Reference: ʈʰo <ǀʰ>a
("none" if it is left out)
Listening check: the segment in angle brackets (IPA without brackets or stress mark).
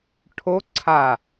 ǀʰ